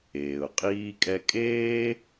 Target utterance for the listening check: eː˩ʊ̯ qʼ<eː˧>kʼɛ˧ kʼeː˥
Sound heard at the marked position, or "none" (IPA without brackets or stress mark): iː˧